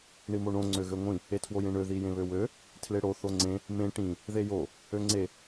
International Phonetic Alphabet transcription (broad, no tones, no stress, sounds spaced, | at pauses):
ɳ i m o ɳ õ ŋ͡ǀ ø ɣ ø ŋʷ ĩ | e tʰ w o j ẽ ɳ ø ð i j ẽ β ø w ø | tʰ l e ɽ o θ o ŋ͡ǀ ẽ | m ẽ ʈ ĩ | ð e j o | ø ŋ͡ǀ e